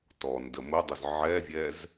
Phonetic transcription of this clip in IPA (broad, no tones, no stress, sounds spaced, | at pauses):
t ɔ n d ə m ʊ dˤ ʊ z ʕ ɛ vʲ ɛ z